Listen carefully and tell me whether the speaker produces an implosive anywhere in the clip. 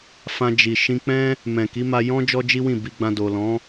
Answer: no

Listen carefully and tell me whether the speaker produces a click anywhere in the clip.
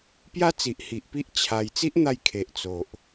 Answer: no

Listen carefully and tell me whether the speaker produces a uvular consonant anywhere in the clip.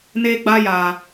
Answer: no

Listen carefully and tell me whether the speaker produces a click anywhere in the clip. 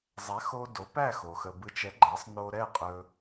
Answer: yes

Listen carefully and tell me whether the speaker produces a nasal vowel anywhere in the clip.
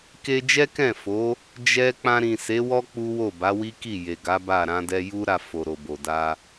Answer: yes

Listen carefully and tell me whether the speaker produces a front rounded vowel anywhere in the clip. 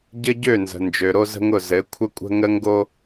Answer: yes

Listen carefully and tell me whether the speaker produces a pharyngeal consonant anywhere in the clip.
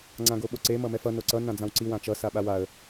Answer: no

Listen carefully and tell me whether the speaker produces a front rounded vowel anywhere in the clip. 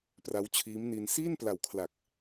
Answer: no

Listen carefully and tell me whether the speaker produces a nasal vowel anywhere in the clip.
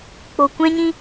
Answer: yes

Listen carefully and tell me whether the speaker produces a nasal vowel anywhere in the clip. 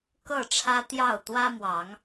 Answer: no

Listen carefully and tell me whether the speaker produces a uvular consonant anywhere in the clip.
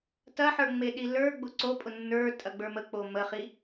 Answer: yes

